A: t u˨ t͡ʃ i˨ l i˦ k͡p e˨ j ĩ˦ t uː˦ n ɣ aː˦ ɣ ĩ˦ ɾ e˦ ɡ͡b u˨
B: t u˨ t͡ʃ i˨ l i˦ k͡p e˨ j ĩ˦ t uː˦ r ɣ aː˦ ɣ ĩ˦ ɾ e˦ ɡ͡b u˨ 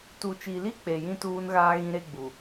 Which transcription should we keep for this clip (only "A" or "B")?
A